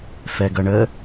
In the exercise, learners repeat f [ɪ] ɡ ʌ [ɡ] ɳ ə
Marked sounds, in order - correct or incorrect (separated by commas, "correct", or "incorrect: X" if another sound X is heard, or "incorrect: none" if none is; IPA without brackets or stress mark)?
incorrect: ɛ, incorrect: none